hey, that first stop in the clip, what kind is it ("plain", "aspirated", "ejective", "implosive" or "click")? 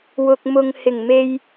plain